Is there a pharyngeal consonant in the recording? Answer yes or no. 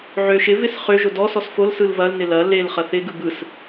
yes